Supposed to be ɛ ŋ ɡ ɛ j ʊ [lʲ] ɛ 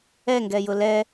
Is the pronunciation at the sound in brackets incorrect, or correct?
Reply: incorrect